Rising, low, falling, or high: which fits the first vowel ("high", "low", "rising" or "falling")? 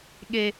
low